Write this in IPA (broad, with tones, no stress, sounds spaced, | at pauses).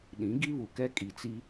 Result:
ɗ ĩ˨˦ ɡ i˦ β u˨ k ɛ˦ kʼ i˨ t͡s i˦